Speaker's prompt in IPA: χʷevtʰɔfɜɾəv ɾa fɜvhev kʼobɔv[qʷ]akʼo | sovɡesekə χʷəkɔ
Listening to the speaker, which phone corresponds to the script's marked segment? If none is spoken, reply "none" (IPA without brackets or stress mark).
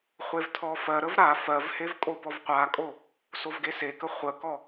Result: qʷ